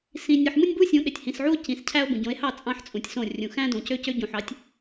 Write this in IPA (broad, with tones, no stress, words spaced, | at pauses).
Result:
sĩ˨nʲɯ˨ħ mɯ˦nʲbu˦sʲũ˨˦ ɗe˨tʲhĩ˨sʕu˦o̯ cĩ˨scʰæ˦o̯ bũ˨ɟõ˨˦e̯hɑ˦˨ t͡sʼɑ̃˦ħt͡sʼũ˨tʲsõ˦˨ rʲũ˨xæ̃˦ dõ˨cø˦cø˦ ɟũ˨ħɑ˨˦tʲ